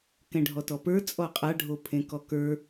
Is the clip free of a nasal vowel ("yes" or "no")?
no